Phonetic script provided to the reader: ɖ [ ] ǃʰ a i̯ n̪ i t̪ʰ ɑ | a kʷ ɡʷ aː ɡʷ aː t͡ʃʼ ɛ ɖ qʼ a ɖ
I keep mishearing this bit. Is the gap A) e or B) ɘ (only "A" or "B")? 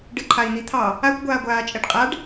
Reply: B